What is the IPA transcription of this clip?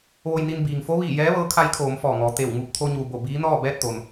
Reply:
ʋ o˧ j n i˧ n b iː˩ ŋ f o˧˥ ʋ iː˧˩ j ɛː˧˥ ʋ ɤː˧˥ kʰ a˧˥ j kʰ oː˩˧ m f ɔː˧˩ ŋ ɔː˩˧ t̪ e˧˩ w ŋ u˧˩ p̚ t̪ʰ o˧ ɲ u˩ b o˧˩ b iː˧˥ n ɔː˥˨ b ɛː˥˨ t̚ t̪ o˩ n

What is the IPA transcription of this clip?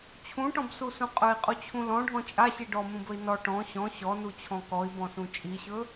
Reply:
t͡ɕʰ ũ ʈ ɔ̃ b s u s ũ qʼ ɵ i̯ qʼ u t͡ɕʰ ũ l ɔ̃ ɖʱ ɔ̃ t͡ʃʼ a ɕ i ɖ ɔ m ũ b ɵ i̯ n ɔ ʈ ɔ̃ ɕ ɔ̃ ɕ ɔ n u t͡ɕʰ ɔ̃ k ɔ i̯ b ɔ̃ s ũ t͡ʃʼ i ɕ ɵ

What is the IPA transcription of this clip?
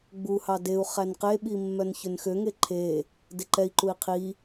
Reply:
ɡ͡b u h ɑ d e u̯ χ æ n q e ɓ i mː œ n ç ø n x ø ŋ e ǃʰ e | d e ǃ ɛ i̯ ǃ u i̯ qʰ i

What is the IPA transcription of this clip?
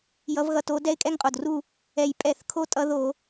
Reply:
j ʌ˨˦ v ɣ ʌ˨˦ t o˨˦ d ɛ˦ ɪ̯ kʼ ɛ˦ ŋ qʼ o˨˩ d r u˦˨ | ɛ˨˩ j pʼ ɛ˧˩˧ θ kʰ o˦ tʼ ʌ˨˦ ð o˧˩˧

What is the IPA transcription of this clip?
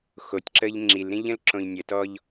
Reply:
x o tʲ ǁ ə ʎ ŋ͡ǁ i l ɾ ĩ ʎ ə̃ l ǁ õ ʎ nʲ ə t ɔ ʎ

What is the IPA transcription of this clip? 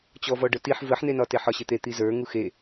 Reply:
t͡ɕ ɔ v ɔ ɖ ə t i ħ v ə ħ n e n ɒ t e ħ ɒ ɕ ɪ t̪ e t̪ i z ə˞ ŋ u x e

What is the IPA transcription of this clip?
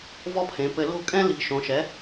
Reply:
v ɔ˥ pʰ ẽ˩˥ p ɘ˧ l o̤˥˩ kʼ ɛ̃˥ l i̤˧ ʃ õ˩˥ ʃ ɛ˩˥

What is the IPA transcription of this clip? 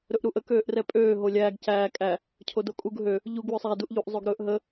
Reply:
ɾ ɵ ʔ ɾ u ʔ ə k øː ʔ r ɛ pʼ øː ɦ o lʲ æː ɡ c æː kʼ æ | cʰ o d o kʼ u ɡ ɦ ø | ʎ u ɡ w ɵ sˤ æ d u ʔ ʎ u ʔ zˤ o ɡ ɾ ɵː ʔ ɦ ə

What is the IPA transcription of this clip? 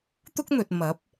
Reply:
t̪ ʊ˥ k̚ n̪ ɵ˨ t̚ m ɐ˨˥ p̚

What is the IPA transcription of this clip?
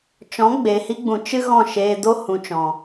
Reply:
t͡ʃ ɔ̃˨˦ ɡ͡b e˨ h i˧ ɡ͡b ũ˨ t͡ʃ ɨ˧ ɣ ɔ̃˦˨ ʃ eː˧ d o˦ h ũ˨ t͡ʃ ɔ̃˨

